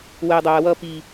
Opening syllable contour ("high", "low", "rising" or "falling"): low